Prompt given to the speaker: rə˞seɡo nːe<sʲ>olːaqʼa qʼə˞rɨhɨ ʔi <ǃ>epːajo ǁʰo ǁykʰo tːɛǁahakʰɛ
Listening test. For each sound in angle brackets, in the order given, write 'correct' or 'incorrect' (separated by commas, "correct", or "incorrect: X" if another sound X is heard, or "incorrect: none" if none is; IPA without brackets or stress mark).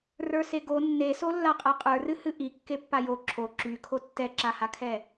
incorrect: s, incorrect: kː